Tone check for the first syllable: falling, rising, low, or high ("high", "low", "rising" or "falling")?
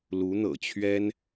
rising